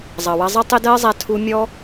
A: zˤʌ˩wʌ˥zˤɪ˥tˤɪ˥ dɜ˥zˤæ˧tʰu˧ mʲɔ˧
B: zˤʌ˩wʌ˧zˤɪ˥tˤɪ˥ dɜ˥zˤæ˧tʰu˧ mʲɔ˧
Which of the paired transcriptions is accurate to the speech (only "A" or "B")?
B